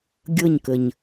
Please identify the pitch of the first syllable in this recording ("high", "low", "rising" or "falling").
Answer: falling